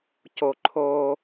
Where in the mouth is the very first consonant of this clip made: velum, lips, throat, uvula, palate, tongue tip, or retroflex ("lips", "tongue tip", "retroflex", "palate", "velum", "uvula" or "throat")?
palate